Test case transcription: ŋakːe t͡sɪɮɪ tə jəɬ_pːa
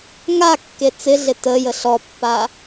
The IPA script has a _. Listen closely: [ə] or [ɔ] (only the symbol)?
ɔ